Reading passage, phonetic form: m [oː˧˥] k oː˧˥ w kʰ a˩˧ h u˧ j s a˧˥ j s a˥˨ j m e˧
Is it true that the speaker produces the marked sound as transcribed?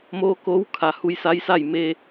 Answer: yes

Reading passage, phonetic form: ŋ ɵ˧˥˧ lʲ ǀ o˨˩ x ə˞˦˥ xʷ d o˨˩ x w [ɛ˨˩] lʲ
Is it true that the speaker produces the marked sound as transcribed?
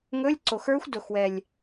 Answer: yes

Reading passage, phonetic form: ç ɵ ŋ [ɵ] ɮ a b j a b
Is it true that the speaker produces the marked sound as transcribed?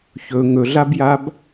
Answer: yes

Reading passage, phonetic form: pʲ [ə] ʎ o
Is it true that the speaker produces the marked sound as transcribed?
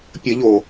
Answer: yes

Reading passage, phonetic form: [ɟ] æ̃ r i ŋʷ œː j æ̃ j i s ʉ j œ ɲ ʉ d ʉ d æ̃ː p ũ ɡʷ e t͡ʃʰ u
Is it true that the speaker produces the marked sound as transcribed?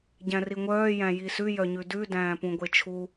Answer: yes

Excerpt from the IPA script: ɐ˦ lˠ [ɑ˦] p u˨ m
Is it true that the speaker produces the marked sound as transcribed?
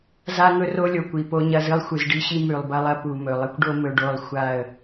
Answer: no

